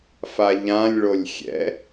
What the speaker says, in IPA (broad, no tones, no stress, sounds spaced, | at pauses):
f a ʎ ã lʲ ɭ o lʲ xʲ ɛ̰